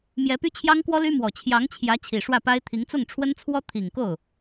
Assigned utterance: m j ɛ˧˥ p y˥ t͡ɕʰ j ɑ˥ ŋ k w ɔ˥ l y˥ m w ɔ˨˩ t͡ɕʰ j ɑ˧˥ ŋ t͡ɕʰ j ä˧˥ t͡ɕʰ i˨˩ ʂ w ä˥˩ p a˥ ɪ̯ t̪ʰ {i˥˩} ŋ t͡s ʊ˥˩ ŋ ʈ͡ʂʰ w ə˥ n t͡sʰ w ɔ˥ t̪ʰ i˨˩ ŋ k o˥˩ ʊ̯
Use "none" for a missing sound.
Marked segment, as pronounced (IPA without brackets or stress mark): i˧˥